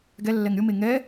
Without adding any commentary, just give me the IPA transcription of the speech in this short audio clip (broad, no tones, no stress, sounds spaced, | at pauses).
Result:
ɡ ɛ lː ɛ ŋ ɾʲ ʊ m e ŋ ɛ